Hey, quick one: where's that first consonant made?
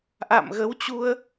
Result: throat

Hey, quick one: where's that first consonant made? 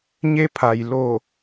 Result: palate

